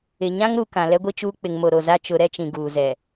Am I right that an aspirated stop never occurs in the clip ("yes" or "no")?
yes